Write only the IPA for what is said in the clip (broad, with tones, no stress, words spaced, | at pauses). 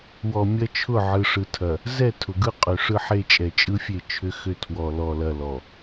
wɔ˨ mʲɐ˦t͡ʃʰʊ˦˨ ʕɯ˨ ʂɯ˨tʰɐ˨ | zɛ˦˨ tʰʊ˨ɡɯ˦ qʼʏ˨ ʂɯ˦ħe˦ t͡ʃʼɛ˨t͡ʃʼɯ˦fʲe˦˨ t͡ʃʰʏ˦xʏ˦˨ tʰwɔ˨ lɔ˨lɐ˨ lɔ˨